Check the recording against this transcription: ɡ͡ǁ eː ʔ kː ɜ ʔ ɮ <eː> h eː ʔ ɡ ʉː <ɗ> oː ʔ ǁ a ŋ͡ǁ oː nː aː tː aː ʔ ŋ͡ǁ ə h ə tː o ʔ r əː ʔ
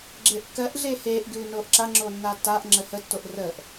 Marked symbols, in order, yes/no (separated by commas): yes, no